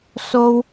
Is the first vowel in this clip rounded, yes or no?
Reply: yes